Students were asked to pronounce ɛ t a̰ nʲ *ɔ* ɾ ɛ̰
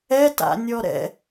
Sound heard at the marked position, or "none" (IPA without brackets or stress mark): ɔ